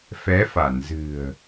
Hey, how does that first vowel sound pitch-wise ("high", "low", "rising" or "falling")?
rising